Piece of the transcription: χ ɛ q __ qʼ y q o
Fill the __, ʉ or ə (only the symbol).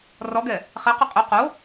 ʉ